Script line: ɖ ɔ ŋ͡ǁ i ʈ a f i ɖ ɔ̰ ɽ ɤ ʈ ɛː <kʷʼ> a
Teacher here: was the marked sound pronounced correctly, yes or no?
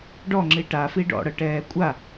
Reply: yes